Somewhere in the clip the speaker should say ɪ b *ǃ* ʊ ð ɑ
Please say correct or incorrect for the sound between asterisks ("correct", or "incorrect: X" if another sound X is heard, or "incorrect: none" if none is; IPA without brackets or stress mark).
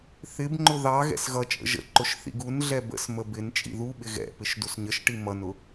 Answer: incorrect: ŋ͡ǃ